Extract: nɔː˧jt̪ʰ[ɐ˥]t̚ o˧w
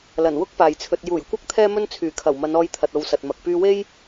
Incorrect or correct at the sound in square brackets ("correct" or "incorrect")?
incorrect